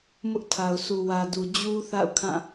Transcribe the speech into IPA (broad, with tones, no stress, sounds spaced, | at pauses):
m ʊ˦ ʔ tʰ a˨ ʊ̯ sʰ u˨ w ä˨ d u˨ d͡ʑ u˦ θ a̰˦˨ ʊ̯ kʰ ã˦˨